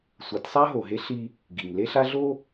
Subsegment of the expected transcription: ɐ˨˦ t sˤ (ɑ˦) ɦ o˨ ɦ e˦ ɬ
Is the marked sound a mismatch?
yes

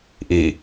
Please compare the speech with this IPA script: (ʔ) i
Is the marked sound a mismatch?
no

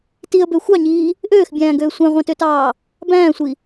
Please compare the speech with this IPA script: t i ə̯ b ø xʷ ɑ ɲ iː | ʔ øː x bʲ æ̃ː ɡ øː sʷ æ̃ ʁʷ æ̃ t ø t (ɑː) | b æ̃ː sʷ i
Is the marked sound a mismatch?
no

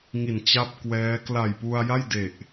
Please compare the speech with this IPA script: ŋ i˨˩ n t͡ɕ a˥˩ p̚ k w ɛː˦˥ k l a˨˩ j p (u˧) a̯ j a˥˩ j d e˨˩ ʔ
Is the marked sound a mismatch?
no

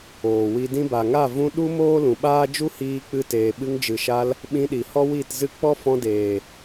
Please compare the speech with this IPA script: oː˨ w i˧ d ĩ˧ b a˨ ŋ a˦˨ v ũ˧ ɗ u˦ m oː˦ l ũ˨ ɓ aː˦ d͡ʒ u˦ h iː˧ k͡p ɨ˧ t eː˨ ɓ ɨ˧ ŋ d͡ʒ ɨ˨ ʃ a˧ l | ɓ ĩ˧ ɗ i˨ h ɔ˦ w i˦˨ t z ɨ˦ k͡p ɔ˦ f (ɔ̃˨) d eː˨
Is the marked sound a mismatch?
yes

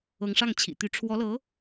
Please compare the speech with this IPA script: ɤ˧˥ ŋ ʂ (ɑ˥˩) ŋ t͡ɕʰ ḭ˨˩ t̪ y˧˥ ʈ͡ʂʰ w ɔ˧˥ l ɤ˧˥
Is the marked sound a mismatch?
no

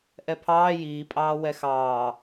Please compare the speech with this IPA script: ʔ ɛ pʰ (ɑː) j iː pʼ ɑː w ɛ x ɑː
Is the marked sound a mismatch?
no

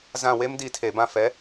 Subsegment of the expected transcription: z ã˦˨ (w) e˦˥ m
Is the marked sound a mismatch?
no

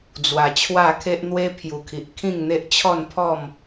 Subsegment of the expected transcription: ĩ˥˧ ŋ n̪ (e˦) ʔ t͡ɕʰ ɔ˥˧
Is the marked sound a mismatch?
no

